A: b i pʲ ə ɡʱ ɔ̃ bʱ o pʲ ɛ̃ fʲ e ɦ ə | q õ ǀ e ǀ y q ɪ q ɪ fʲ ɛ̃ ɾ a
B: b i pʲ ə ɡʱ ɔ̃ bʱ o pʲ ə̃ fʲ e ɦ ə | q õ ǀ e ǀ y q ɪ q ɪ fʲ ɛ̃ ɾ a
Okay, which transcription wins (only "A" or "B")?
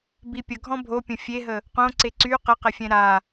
B